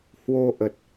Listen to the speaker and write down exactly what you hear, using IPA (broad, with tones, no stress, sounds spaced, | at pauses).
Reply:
h w o˧ ʔ ə˨˩ t̚